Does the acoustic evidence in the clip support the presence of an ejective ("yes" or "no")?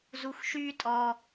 yes